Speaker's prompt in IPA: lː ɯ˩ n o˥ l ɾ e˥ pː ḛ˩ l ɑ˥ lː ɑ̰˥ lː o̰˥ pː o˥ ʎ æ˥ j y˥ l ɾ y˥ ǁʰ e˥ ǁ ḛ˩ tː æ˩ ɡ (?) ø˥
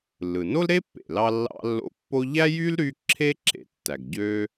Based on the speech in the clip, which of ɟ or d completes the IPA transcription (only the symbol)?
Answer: ɟ